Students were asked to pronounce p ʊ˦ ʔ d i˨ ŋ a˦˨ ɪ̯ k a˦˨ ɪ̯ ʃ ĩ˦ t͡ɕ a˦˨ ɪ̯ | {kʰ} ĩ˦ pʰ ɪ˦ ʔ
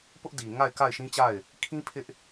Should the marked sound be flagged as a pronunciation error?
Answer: no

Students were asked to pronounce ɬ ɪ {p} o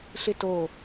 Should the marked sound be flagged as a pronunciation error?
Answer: yes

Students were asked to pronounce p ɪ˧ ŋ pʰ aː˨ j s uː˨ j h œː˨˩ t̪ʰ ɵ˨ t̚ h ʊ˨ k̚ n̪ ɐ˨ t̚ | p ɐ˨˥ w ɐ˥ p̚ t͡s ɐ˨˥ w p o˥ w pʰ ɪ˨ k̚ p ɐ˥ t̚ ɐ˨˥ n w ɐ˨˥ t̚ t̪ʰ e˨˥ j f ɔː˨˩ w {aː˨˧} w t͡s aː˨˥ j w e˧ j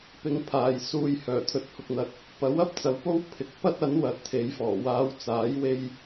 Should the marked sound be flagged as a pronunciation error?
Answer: no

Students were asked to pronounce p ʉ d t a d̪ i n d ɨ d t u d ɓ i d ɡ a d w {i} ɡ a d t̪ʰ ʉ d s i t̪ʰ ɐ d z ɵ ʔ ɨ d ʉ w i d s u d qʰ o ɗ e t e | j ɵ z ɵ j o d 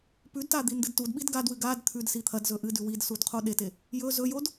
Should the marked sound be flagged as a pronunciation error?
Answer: yes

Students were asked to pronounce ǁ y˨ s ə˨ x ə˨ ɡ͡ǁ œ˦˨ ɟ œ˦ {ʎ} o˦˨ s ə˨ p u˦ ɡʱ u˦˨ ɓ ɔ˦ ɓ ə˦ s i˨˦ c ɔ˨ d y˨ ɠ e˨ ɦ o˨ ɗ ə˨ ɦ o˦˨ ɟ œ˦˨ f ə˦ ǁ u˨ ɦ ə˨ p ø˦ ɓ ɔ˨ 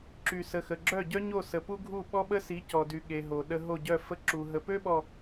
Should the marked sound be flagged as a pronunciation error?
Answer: yes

